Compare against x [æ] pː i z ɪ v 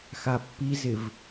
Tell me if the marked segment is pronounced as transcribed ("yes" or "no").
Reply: no